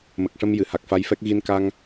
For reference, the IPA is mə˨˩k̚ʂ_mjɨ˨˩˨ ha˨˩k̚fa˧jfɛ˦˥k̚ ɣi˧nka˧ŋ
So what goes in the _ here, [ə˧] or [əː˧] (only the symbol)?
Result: ə˧